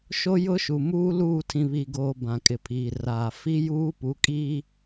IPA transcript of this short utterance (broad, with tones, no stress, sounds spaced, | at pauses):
ʃ o˦ j ʊ˦ ʃ u˨ m uː˦ l uː˦˨ tʰ ĩ˨ β i˨ ɡ oː˨ b ã˨ kʼ ɪ˨ pʰ iː˨ r aː˨ f i˦ j uː˦ p u˨˦ kʼ iː˦